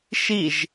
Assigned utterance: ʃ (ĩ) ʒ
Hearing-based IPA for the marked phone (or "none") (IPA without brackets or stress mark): i